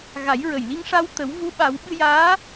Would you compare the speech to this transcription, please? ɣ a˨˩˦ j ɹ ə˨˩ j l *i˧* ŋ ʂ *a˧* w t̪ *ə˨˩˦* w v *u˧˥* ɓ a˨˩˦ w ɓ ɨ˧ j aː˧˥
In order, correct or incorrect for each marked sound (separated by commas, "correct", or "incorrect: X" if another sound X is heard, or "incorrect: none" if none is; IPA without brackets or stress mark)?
correct, correct, correct, correct